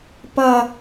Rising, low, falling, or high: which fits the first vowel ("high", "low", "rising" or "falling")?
high